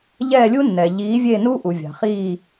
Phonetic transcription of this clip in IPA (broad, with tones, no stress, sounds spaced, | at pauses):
ʎ ɛː˦˨ lʲ u˦˥ nː ɛ˩ ʎ iː˨˥ vʲ e˦˨ n u˦˥ ʔ u˩ vʲ a̤˩ χ iː˦˨